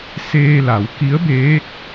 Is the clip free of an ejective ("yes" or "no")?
yes